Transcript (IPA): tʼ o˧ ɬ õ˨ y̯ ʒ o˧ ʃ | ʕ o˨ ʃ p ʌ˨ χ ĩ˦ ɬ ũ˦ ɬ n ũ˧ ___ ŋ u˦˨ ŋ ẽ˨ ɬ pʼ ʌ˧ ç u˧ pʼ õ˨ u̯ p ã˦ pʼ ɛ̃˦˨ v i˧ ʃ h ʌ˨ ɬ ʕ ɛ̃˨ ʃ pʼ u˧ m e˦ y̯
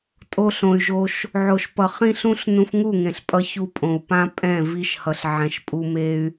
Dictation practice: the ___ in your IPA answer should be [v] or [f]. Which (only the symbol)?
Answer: f